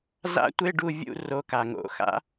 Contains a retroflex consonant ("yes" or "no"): yes